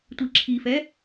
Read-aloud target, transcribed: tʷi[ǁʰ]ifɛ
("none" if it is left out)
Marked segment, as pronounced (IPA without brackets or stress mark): ǁʰ